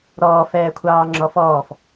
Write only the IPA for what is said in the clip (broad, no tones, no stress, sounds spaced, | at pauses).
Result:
ɾ ɔː f ɛː kʷʰ ɑː ŋ͡ǁ ɔ f ɔː f